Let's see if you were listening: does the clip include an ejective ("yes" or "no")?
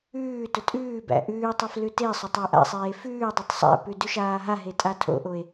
yes